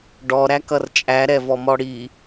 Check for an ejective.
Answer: present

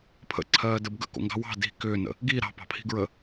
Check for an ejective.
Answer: absent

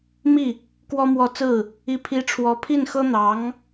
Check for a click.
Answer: absent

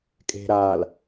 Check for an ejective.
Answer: present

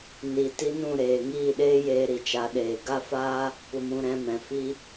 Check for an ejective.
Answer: absent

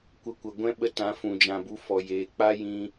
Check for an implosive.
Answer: present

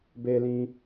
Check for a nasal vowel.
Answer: present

